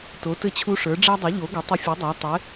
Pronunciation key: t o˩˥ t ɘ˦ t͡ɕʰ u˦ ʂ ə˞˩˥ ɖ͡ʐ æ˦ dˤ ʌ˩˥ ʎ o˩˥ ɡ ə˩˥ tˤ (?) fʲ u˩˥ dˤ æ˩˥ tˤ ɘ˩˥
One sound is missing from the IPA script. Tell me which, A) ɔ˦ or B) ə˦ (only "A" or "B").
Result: B